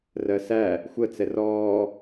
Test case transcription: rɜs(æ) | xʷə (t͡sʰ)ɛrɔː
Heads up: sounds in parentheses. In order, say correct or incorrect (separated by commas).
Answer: correct, incorrect